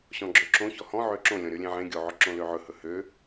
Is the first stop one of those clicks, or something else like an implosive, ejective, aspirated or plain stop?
click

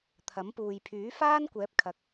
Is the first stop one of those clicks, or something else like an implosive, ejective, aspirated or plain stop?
aspirated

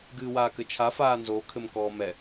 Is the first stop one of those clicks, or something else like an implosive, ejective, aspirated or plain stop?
plain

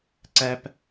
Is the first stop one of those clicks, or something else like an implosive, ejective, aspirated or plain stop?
click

